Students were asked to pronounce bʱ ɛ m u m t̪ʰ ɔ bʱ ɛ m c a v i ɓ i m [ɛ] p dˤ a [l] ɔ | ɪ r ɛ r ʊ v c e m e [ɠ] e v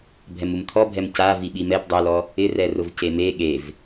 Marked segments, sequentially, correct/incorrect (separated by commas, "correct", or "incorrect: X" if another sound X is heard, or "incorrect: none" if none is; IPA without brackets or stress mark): correct, correct, correct